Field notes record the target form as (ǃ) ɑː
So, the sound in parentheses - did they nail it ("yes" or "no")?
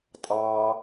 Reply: no